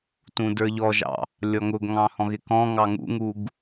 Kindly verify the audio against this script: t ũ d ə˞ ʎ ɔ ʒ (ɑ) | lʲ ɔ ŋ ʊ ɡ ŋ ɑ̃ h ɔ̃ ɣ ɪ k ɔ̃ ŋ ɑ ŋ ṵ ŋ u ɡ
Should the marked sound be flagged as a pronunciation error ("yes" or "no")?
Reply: yes